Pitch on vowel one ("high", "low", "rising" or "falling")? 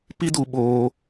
high